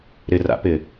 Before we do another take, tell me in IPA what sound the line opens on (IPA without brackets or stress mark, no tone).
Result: ɾ